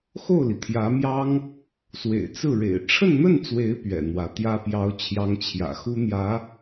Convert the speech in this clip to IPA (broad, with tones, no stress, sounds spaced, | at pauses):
x o˥˩ ʊ̯ l i˩ t̪ʰ j ä˧˥ m j ɑ˥ ŋ | s w ḛ˨˩ ɪ̯ t͡s ɹ̩˥˩ ɻ ḛ˨˩ ɪ̯ ʈ͡ʂʰ ə˥˧ n n̪ ə˥˩ n t͡s w e˧˥ ɪ̯ p ɥ ɛ̰˨˩ n̪ w ä˧˥ t̪ j ä˥ p j ɑ˥ ʊ̯ t͡ɕʰ j ɑ˥ ŋ t͡ɕʰ j ä̰˨˩ x u˥ n̪ j ä˧˥